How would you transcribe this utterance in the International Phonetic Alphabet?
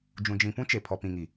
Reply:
d͡ʒ ũ˨ d͡ʒ ĩ˨ p ũ˦ t͡ʃ e˨ pʰ ɔ˨ p ĩ˨ ŋ i˨

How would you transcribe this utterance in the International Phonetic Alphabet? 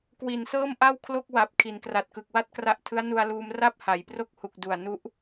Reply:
k w i˨˩ n s ɤː˥˩ m ʔ a˥˩ w kʰ l o˥˩ k̚ w a˨˩ p̚ kʰ i˩˦ n k r a˨˩ t̚ k ɯ˨˩ k̚ w a˥˩ t̚ k r a˦˥ ʔ tʰ ɯ˦˥ a̯ n u˧ a̯ l uː˧ m r a˥˩ p̚ h a˩˦ j p r o˥˩ k̚ h u˨˩ k̚ d u˨˩ a̯ n u˦˥ ʔ

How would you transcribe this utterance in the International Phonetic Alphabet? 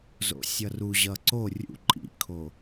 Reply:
z o̰ sʲ ʌ r u ʑ ʌ ǀ o rʲ ṵ ǃʼ ḭ kʰ o

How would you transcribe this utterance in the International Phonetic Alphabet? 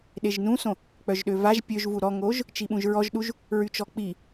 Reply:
ɗ e ʒ n ũ s õ | k͡p œ ʒ ɗ ø v a ʒ pʲ ø ʒ v u ɾ ɔ ŋ o ʒ | t͡ʃ i ɓ ũ ʒ ɹ ɔ ʒ ɗ u ʒ | ɹ y t͡ʃ ɔ k͡p i

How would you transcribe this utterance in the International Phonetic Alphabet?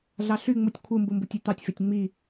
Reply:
ɮ ɑ ɬ y ŋ͡m u tʲ kʷʰ ɯ m b ɯ m b u tʲ y t̪ ɑ tʲ f e tʲ ŋ͡m i

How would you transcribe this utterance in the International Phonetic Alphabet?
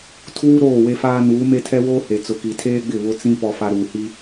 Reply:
tʰ uː˦ ɾ oː˦˨ w e˦ f aː˦ n uː˨˦ m e˦ tʰ ɛ˦ w oː˦ h e˨ t͡s ʊ˨ k i˨ tʰ eː˦ ɡ͡b ɪ˦˨ β ʊ˦ t͡s ĩ˦ p ɔ˦ f a˦ ɾ uː˨ h i˦

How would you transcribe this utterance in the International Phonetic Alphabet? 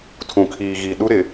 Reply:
tʰ ũ˨ kʰ iː˨ ɣ i˨ ɗ u˦ ɾ ɪ˨

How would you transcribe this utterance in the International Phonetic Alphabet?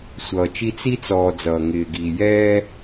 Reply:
sʷ ʌː˨ t͡ʃ i˦ t͡s i˦ t͡s ɔː˨ d͡z ʌː˨ ŋ ɪː˨ ɡ iː˨ j ɛː˦

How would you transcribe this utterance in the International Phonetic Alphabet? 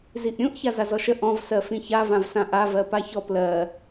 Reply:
z i ʔ ɾʲ ũ ʔ ç a z a z ɔ ʃ ə ʔ ɔ̃ v s ɜ f ĩ ç a v ã v s ã ʔ a v ɜ p a ç ɔ p l ɜ

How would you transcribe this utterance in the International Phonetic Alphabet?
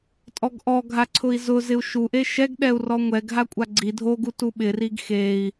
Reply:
tʼ ɔ ɡ ʔ ɔ ɡʱ a ǀʰ ʊ i̯ z ʊ z ɪ u̯ ʃ u ʔ e ʃ ɛ ɡ ɗ ɛ u̯ r ɔ ŋʷ ɛ ɡ ɦ a kʷʼ a ɡ͡ǀ i dʱ o ɡ u t u ɓ ɪ r i ɡ x e i̯

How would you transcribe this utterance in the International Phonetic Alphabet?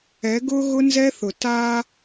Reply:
ɛ˨˦ ɡ ʊ˦ ɣ ʊ˦ n z ɛ˦ θ ʊ˨ t a˦

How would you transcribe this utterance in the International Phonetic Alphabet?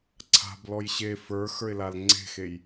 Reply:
ǀʰ a̤ b l ɔ j ɕ e f ə˞ x ə˞ ɪ̯ l a l ŋ͡ǀ e̤ x e j

